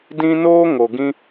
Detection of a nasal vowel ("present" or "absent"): present